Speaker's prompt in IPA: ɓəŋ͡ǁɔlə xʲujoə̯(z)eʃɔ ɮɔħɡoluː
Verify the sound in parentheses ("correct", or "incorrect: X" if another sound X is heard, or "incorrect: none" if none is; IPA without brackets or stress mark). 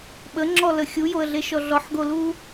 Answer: incorrect: ɮ